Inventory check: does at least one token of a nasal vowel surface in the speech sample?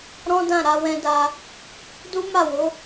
yes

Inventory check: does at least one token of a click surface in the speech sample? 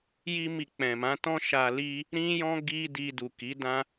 no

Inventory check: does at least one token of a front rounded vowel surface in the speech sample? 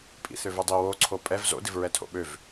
yes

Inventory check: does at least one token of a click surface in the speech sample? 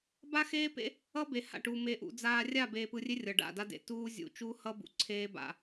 yes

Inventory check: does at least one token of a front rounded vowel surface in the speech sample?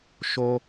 no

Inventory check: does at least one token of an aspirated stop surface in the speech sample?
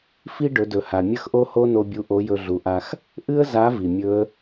no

